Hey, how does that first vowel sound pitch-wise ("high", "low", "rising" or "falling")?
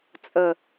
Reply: low